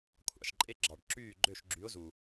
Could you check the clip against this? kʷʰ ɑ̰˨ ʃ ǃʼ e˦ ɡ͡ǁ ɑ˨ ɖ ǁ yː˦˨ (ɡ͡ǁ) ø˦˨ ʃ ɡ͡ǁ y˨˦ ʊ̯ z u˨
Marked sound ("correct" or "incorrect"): incorrect